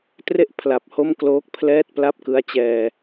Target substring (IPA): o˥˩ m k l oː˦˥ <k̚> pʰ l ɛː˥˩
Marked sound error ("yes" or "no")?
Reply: no